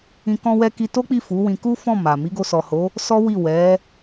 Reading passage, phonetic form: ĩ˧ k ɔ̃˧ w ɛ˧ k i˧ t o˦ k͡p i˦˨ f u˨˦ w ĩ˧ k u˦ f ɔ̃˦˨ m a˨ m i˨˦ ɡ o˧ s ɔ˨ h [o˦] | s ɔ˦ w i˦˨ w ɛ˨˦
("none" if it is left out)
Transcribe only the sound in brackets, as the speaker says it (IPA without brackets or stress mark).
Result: o˨˦